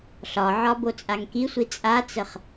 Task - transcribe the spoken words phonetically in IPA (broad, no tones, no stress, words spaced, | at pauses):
ɬɒʕɒ bot͡sʼaŋkisʷi t͡sʼat͡səχ